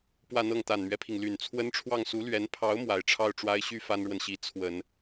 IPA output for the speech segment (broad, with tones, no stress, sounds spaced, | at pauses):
p w ä˥˧ n̪ ɤ˥˩ ŋ t̪ a˨˩ n m ɥ ɛ˦ pʰ i˩ ŋ l y˨˩ n t͡sʰ w ə˥ n ʈ͡ʂʰ w ɑ˥˩ ŋ s u˧˥ l ɥ ɛ˧˥ n pʰ ɑ˧˥ ʊ̯ m w a˨˩ ɪ̯ ʈ͡ʂʰ ɑ˥˩ ʊ̯ ʈ͡ʂ w a˥ ɪ̯ ɕ y˥ f a˥ n ɻ w ə˨ n ɕ i˧˥ t͡sʰ w ə˨˩˦ n